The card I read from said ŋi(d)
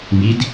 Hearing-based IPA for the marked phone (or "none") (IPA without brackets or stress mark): d